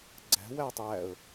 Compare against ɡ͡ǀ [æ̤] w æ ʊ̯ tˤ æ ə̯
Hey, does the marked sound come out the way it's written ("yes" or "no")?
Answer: yes